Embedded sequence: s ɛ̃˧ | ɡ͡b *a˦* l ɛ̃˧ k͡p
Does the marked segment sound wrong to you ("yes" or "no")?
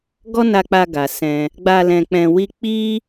yes